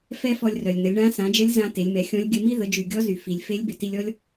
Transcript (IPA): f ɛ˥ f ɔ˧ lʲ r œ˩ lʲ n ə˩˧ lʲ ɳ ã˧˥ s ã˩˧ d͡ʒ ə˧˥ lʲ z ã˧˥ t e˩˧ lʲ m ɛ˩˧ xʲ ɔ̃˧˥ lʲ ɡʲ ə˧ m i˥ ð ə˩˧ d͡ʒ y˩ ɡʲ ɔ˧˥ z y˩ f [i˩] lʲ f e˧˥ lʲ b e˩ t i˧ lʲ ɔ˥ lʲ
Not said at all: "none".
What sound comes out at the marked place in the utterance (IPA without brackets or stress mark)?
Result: i˩